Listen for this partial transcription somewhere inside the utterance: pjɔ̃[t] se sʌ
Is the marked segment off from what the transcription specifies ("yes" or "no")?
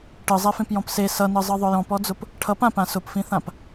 yes